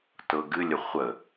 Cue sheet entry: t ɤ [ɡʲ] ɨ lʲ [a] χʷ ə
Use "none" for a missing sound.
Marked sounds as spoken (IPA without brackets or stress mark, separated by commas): ɡ, ə